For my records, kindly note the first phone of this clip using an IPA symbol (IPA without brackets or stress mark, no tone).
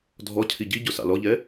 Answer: dʱ